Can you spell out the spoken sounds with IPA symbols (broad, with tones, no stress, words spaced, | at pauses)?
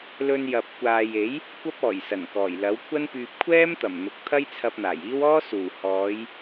lɵ˧njɐ˨p̚kʷaː˨je˨˥j | kʷɐ˥p̚ɔː˨˩jsɐ˨˩nkɔː˨˩j lɐ˨˥wkʷʰɐ˥npyː˧p̚ kʷʰɛː˥mt̪ɐ˨˩mn̪ʊ˨˥k̚ t̪ʰɐ˥jt͡sʰɐ˧p̚n̪aː˨˩jiː˥w ɔː˥suː˨˩ hɔː˨˧j